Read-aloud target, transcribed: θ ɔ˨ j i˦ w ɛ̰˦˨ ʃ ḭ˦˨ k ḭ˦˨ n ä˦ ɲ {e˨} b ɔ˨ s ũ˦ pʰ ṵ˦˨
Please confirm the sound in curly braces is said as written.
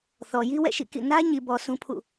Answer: no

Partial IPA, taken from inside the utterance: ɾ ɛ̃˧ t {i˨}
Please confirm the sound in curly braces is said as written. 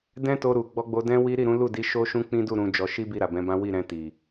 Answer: yes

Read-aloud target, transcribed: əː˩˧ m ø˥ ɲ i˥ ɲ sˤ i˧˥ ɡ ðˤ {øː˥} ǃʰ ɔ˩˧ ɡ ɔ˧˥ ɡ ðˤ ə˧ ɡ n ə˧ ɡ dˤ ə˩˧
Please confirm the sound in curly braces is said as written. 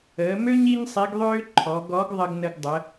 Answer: yes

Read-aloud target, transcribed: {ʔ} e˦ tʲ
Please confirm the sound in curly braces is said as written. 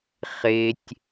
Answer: no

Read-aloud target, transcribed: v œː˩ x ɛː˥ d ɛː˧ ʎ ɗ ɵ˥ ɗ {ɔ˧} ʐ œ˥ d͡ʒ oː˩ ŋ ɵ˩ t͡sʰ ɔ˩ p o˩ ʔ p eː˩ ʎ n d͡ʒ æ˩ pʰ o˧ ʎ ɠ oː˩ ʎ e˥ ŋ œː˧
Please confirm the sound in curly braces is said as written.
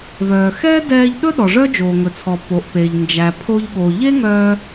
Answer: no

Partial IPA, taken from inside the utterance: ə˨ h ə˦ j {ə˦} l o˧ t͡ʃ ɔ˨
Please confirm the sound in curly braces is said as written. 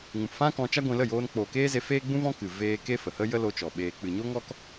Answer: yes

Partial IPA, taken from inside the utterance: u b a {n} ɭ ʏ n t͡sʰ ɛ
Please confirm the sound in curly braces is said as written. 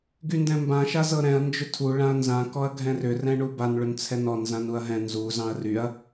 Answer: yes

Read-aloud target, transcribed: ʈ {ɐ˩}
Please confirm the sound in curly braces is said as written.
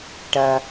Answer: yes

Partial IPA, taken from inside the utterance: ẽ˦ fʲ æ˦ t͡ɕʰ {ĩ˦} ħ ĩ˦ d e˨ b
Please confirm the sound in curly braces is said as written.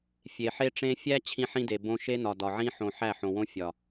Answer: yes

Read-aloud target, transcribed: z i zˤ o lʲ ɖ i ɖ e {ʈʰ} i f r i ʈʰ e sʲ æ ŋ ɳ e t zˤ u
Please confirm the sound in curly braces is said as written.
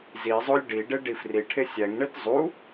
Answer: no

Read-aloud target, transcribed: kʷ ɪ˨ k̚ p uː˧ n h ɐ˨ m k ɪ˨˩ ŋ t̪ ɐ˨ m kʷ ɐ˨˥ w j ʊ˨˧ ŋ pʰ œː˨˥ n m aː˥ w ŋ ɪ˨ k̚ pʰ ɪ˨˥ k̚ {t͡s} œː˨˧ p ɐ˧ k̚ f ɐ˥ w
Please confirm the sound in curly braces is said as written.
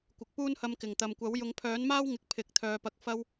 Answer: no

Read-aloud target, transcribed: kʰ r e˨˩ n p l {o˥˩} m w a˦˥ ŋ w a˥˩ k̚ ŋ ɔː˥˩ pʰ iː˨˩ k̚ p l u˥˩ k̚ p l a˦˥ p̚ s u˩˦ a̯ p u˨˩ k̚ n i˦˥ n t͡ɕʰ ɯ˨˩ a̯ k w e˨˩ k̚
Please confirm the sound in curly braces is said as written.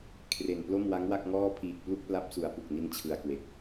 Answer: yes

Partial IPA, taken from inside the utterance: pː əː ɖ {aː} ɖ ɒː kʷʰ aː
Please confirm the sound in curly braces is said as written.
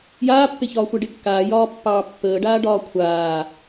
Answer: yes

